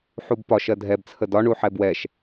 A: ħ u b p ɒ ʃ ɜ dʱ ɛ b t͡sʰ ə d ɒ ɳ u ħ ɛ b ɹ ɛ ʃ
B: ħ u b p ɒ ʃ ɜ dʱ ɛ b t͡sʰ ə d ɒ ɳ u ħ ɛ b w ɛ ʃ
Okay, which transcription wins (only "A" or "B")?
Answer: B